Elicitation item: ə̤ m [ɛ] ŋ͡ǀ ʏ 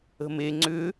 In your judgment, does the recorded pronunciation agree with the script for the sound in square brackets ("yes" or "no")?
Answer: no